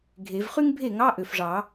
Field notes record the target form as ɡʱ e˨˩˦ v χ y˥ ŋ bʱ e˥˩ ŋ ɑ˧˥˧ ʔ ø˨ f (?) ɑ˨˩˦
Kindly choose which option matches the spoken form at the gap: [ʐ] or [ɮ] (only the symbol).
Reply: ʐ